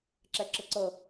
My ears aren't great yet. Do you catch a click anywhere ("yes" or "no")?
yes